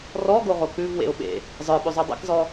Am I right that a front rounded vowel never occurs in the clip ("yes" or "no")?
yes